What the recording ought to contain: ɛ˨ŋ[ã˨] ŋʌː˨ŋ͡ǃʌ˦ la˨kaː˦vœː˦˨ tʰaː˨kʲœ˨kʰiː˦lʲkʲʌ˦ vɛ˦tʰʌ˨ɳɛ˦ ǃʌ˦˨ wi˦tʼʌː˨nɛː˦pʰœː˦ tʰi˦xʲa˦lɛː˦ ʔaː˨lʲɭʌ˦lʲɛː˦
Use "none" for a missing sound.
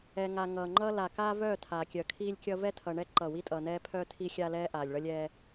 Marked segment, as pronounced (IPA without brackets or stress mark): a˨